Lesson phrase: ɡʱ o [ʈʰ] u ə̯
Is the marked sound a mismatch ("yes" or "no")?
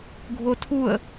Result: yes